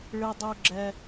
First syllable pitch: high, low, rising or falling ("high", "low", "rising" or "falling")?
low